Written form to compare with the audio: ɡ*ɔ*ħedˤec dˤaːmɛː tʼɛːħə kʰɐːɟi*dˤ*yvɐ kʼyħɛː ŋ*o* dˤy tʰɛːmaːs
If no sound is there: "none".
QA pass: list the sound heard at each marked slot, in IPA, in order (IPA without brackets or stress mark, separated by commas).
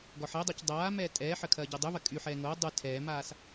ɔ, dˤ, o